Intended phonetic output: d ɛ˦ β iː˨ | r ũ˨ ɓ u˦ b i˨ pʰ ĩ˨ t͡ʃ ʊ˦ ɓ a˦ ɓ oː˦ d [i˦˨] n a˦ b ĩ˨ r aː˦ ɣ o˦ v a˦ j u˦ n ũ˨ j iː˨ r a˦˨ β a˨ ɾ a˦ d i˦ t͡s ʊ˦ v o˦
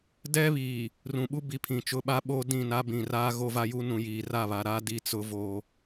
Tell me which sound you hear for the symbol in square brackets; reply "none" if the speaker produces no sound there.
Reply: ĩ˦˨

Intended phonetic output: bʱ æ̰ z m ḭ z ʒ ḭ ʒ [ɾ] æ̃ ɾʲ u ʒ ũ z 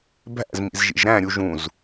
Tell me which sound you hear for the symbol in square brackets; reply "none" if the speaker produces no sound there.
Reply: ɾ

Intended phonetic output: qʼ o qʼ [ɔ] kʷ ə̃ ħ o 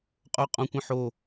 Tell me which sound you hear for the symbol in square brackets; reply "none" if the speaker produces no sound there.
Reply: ɔ̃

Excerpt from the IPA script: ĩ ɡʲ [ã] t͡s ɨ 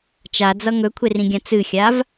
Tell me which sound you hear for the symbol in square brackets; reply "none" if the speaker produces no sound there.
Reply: ã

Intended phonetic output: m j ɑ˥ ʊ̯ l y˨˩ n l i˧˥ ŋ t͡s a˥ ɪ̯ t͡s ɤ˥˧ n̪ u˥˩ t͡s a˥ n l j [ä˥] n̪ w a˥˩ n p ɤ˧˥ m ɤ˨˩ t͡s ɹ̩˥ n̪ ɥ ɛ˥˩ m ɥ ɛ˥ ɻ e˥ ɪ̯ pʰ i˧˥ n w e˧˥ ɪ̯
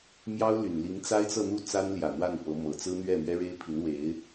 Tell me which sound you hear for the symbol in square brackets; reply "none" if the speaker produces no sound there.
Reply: ä˨˩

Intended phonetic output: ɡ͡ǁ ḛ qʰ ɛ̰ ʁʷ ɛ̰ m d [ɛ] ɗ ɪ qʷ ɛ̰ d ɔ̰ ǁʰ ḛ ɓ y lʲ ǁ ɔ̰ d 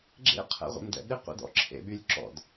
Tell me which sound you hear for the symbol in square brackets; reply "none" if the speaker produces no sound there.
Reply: ɛ̰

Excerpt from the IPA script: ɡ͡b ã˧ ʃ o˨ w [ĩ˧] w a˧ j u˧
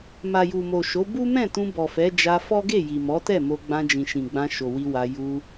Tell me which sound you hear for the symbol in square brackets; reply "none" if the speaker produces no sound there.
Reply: i˧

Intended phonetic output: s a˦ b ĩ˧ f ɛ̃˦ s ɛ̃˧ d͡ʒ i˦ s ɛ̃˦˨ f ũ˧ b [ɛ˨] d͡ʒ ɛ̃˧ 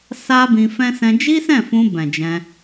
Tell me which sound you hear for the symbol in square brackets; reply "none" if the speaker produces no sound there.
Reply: ɛ̃˨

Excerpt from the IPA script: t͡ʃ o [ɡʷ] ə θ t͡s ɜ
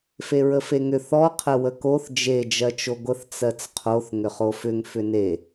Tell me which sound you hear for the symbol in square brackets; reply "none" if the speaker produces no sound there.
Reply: ɡʷ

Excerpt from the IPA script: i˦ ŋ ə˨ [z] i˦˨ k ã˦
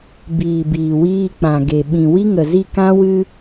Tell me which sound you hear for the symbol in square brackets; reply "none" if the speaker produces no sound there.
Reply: z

